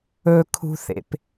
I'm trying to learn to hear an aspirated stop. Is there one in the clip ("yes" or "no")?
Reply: yes